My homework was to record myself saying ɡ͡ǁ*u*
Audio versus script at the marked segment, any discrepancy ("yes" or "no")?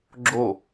yes